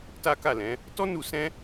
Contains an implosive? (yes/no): no